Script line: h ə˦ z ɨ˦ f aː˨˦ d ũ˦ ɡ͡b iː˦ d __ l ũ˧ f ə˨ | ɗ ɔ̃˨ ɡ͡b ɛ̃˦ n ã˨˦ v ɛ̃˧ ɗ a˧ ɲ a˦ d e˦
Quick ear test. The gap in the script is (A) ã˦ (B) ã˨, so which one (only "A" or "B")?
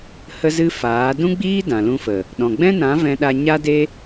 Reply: B